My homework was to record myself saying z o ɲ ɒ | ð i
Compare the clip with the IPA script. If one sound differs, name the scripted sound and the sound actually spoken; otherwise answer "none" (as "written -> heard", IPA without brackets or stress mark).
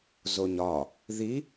none